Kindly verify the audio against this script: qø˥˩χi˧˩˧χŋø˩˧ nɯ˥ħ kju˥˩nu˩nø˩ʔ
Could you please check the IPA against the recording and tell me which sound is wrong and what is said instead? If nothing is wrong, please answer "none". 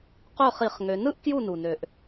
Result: ħ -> ʔ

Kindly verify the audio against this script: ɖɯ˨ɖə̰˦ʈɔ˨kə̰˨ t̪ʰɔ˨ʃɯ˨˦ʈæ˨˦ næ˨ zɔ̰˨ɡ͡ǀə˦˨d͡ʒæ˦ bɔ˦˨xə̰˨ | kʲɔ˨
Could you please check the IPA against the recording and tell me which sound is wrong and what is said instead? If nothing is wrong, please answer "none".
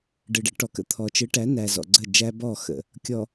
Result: ʃ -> t͡ʃ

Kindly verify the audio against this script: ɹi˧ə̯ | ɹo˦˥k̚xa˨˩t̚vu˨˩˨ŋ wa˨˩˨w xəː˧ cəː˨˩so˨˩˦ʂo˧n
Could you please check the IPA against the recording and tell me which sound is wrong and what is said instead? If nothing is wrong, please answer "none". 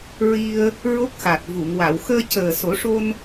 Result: none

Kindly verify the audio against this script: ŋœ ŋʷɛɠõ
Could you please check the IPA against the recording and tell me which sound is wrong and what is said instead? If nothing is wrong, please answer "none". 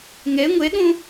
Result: œ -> ɛ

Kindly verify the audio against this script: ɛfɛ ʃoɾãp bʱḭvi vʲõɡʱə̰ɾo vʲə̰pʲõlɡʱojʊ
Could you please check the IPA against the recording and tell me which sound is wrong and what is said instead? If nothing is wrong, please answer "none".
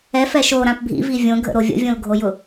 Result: pʲ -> vʲ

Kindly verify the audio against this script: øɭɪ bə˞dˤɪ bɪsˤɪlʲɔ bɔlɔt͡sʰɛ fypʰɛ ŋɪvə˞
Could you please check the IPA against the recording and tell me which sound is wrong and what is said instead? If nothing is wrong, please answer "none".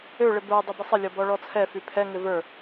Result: l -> ɭ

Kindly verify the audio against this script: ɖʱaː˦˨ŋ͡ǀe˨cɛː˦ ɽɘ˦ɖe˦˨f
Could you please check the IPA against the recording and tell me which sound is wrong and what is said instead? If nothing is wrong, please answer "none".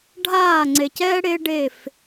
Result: ɘ˦ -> e˦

